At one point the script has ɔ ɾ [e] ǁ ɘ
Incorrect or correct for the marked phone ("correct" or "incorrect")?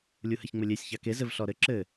incorrect